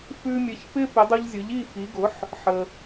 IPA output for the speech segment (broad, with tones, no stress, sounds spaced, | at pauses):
f ʉ˧ mʲ ɘ˩˥ ç p ɪ˥ p ɪ˩˥ dˤ u˧ ʎ zʲ ʊ˩˥ ʎ i˥˩ f i˩˥ ɡ ʊ˩˥ ħ | ħ ə˩